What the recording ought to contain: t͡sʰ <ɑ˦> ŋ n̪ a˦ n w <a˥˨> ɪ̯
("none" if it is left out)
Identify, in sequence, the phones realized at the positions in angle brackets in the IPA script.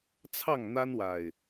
ɑ˥˨, a˨˩

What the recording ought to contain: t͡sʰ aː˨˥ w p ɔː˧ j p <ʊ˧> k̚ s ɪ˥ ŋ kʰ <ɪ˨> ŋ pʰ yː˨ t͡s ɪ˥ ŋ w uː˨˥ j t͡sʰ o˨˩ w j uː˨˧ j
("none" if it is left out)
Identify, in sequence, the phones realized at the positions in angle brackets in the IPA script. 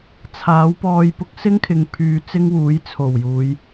ʊ˥, ɪ˨

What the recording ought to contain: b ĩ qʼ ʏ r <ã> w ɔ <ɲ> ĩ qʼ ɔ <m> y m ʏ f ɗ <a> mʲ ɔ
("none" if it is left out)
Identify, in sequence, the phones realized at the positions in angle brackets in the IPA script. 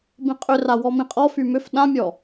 a, m, f, ã

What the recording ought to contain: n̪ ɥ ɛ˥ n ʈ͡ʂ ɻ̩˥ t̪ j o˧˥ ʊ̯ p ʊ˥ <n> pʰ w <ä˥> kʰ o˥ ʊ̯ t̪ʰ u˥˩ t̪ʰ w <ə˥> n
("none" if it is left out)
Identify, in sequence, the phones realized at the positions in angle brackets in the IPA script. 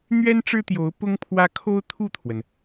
ŋ, ä˥, ə˩

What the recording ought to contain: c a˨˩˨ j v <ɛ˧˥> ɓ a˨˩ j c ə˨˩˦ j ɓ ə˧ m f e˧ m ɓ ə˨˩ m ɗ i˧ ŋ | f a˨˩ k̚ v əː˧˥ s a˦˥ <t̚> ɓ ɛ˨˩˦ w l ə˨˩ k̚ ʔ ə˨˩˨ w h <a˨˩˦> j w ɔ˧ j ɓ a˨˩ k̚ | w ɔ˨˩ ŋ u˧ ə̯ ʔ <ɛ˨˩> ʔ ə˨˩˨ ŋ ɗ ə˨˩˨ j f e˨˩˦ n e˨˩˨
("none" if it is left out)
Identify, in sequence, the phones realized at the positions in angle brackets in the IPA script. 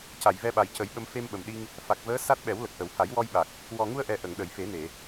ɛ˧, t̚, a˨˩˦, ɛ˨˩

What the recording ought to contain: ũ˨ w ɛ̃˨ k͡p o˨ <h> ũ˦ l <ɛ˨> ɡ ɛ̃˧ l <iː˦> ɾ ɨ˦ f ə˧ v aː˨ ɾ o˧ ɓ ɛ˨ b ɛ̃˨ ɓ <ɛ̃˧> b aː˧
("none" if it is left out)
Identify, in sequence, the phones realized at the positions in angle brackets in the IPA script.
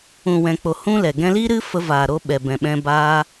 h, ɛ˨, iː˦, ɛ̃˧

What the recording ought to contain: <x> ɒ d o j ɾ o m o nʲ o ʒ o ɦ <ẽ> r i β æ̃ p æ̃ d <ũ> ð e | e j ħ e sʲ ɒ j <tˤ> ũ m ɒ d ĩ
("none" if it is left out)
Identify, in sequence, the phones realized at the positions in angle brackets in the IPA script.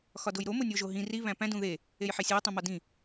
x, ĩ, ũ, tˤ

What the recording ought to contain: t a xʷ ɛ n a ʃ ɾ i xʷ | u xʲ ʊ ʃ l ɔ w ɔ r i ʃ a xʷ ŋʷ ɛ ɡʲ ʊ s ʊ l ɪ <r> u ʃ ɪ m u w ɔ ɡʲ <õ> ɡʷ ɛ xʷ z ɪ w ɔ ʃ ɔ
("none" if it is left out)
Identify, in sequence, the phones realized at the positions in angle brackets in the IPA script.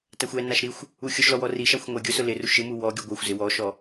r, o

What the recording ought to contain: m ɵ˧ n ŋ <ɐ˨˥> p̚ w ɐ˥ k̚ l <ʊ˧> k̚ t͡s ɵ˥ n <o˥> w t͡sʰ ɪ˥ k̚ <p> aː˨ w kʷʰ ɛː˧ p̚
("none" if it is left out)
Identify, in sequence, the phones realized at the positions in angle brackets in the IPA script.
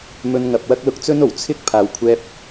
ɐ˨, ʊ˧, o˨˩, pʰ

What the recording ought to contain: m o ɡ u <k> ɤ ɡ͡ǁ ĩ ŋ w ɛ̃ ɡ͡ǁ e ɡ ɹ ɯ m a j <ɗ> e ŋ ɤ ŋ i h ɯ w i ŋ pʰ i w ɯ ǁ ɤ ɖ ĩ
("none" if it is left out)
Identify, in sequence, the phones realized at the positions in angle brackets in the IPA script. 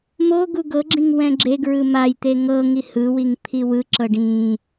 ɡ, t̪

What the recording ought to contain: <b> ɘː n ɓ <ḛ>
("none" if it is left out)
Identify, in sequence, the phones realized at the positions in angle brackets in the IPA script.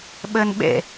ɓ, ḛ

